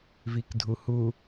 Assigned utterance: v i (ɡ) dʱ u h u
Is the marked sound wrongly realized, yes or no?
yes